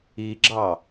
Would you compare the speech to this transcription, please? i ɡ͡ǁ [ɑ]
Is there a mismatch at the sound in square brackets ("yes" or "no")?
no